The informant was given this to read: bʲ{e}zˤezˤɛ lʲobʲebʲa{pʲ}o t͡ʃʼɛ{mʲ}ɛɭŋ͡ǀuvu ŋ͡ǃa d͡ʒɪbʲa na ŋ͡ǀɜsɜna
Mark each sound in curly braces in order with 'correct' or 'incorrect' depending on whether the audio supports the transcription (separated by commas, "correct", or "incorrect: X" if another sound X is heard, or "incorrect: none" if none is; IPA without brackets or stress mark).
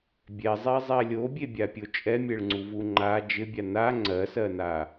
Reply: incorrect: ɛ, correct, correct